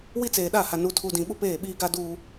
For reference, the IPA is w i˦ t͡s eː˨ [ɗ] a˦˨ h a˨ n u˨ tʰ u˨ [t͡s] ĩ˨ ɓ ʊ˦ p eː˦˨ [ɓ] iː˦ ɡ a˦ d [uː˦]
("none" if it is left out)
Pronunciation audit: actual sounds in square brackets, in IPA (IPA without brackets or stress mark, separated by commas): ɗ, d, ɓ, uː˦